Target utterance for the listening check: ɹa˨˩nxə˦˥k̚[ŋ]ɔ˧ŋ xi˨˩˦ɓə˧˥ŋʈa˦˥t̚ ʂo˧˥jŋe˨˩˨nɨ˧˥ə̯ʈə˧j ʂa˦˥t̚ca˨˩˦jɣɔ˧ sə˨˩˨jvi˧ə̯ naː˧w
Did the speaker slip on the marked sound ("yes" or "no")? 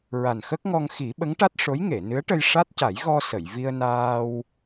no